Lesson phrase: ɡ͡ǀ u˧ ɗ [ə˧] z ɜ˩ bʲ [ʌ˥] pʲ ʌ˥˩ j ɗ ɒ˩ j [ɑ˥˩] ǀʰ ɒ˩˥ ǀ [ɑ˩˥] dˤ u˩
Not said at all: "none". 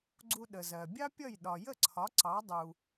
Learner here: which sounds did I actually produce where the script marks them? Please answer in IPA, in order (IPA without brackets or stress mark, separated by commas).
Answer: ə˩, ɑ˥, ə˥˩, ɑ˩˥